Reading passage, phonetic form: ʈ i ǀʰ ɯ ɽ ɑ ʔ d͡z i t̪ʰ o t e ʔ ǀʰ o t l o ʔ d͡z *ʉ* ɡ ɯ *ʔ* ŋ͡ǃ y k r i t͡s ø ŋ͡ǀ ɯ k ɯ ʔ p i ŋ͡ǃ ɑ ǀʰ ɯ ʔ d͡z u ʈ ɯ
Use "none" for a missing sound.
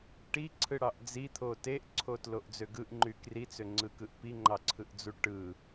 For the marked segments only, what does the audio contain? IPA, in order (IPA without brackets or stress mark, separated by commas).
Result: ø, ʔ